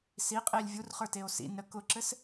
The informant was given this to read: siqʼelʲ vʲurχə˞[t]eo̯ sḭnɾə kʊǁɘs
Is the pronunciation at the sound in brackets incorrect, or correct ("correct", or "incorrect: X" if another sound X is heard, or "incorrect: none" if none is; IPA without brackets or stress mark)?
correct